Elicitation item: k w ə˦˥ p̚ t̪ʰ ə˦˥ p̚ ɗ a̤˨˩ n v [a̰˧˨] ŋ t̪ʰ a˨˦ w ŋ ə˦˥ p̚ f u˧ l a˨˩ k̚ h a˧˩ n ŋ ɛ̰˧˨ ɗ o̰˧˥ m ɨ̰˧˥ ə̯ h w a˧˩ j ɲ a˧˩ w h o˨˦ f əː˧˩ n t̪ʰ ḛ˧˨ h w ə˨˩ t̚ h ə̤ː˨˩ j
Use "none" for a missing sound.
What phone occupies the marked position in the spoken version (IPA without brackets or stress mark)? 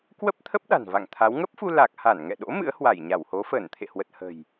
a̰˧˨